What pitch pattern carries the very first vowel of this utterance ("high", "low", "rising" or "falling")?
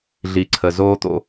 low